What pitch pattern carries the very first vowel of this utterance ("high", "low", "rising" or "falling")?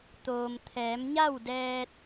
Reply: low